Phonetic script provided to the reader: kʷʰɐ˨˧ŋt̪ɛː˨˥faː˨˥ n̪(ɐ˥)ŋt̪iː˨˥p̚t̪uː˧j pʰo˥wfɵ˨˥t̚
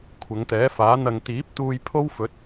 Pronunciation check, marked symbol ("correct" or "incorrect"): incorrect